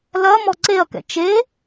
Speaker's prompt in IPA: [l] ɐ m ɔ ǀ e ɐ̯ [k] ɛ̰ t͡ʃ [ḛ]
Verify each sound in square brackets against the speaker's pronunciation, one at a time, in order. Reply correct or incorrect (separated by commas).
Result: correct, correct, incorrect